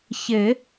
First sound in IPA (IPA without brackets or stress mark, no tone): ç